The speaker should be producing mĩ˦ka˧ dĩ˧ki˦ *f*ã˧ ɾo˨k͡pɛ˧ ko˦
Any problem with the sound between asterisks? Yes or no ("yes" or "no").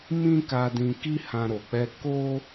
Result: yes